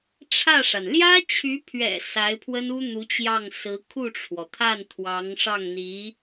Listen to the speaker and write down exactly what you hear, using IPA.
ʈ͡ʂʰä˥˩ʂa˩n ljä˥t͡ɕʰy˧˥pʰɥɛ̰˨˩ sa˧˥ɪ̯pʰwə˥nu˥ n̪u˧˥t͡ɕjɑ˥˩ŋ sɹ̩˧˥ kʰu˥˩ʈ͡ʂʰwɔ˩ t̪ʰa˥˩nt̪ʰwɑ˧˥ŋʂɑ˥˩ŋn̪i˧˥

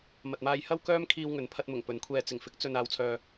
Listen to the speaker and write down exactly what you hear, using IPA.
mɐ˨t̚maː˧jhɐ˥w kœː˥mkʰiː˧w ŋɵ˨˧npʰɐ˧t̚mʊ˨˩ŋ pɵ˨˥nkʷʰɛː˧ t͡sɪ˨˩ŋfɪ˨˥k̚t͡sɵ˨n aː˨wt͡sʰœː˨

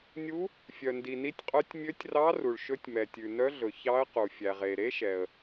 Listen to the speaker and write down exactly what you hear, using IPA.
nʲu˧˥ | fʲœ˩ndi˩ni˧˥tʲqʼœ˧˥tʲ mʲø˧˥tʲrɑ˧˥ ru˩ɭʃɵ˧˥tʲmɛ˩tʲʉ˩ nœ˧˥ɮɵ˩ çɑ˧˥ə̯qu˩ fʲæ˩ʁe˩ɾe˧˥ʃɛ˩ə̯

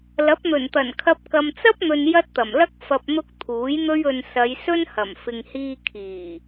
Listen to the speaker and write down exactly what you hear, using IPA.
lɐ˨˥p̚n̪ɵ˨˩nt̪ɐ˨˩nkʰɐ˧p̚ kɐ˨mt͡sɐ˥p̚n̪ɵ˨n jɐ˥t̚t̪ɐ˨˩mlɐ˥k̚ fɐ˨p̚n̪ʊ˧k̚ t̪ʰuː˨˥jn̪ɵ˥ɥɵ˧n sɐ˨˧jsɵ˥nhɐ˨˩m fɪ˨ŋhiː˧ kʰiː˨˩

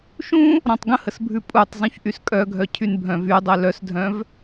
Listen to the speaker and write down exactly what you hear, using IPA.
ʃũ | ɾɔ̃tˤɡə̃həsbʱʉ pʼutˤ zˤũçʔyskʼœɡʱœ cʰynbʱœ̃vydˤœ lœsdʱœ̃v

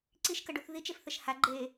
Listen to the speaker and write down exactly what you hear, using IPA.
ǀiʃkəɖuθ ðit͡ʃefθɘʃ ha ɡ͡ǃe

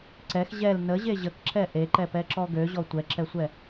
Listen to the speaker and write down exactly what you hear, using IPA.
ǀɛx ʑɛl nəʑe ʑəkǁɛ ʔeǃɛpɛǁɔ ɡøʑɔ tʷɛǁɛsʷɛ

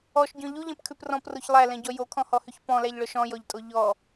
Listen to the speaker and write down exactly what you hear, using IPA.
ɔʃɟɔ̃ ʎuʎɛ̃pkʰʉp rɔ̃proç lˠælɛ̃ɟɔ jokʰɔ̃hɔhyç pɔ̃læʎɭœʃ ɔ̃jɔʎtʼo ʎɔ

